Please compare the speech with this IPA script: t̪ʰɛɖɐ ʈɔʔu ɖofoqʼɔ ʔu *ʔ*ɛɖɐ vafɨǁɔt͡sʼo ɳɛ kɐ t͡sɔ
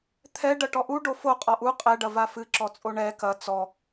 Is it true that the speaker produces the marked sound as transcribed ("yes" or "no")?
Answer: no